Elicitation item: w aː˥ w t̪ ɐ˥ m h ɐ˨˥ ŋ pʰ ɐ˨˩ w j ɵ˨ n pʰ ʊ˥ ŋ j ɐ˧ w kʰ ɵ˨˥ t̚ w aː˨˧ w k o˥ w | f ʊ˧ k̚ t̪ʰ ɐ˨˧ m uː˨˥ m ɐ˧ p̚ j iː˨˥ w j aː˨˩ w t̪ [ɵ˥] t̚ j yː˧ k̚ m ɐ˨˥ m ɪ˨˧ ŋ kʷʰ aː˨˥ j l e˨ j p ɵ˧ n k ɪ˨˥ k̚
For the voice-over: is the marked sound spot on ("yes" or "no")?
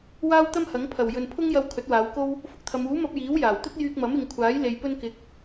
yes